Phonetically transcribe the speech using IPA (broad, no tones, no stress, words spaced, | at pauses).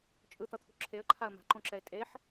t͡ʃʼɯt̪ʌt̪ʰṳ ǁʰeə̯ǃʰaə̯ ma̤ǃõǁɛɪ̯ tʼeħ